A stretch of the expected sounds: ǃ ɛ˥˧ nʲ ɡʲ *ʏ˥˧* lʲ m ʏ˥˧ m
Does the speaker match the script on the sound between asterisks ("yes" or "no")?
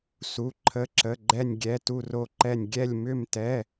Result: no